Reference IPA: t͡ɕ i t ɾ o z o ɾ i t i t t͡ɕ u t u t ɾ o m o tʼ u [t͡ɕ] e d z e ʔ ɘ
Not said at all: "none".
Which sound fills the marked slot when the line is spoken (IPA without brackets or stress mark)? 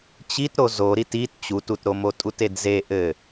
t